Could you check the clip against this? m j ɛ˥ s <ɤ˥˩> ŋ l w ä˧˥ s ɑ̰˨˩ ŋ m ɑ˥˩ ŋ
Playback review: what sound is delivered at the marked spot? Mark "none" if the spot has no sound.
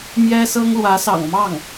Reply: ɤ˥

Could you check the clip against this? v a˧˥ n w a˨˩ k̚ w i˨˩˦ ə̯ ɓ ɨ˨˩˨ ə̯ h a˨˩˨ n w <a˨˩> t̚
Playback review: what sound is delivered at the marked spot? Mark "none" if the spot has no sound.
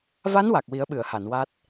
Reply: a˦˥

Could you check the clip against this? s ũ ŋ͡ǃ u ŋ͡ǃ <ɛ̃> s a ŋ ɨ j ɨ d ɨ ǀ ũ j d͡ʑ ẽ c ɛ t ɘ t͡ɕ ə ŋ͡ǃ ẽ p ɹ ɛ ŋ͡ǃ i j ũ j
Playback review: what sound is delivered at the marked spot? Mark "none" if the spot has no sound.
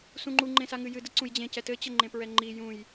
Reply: ẽ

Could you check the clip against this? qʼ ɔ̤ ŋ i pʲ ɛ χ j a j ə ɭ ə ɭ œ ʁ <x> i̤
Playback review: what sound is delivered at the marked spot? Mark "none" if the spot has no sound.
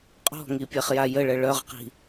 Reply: q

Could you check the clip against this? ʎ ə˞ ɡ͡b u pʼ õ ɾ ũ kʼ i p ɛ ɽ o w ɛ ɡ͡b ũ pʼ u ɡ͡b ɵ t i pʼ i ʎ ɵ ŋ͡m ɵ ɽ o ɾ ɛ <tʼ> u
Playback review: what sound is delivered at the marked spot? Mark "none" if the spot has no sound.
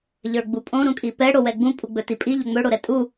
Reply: tʼ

